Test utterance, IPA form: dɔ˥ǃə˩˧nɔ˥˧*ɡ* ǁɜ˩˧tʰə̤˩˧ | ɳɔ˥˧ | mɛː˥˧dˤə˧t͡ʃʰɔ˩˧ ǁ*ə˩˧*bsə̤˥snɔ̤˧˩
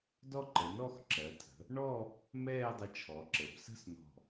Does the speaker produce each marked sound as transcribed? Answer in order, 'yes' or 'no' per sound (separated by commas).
no, yes